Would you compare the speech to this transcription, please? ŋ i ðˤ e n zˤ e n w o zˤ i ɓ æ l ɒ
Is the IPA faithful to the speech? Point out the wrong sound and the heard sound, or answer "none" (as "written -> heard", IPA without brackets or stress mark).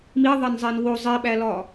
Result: ŋ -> m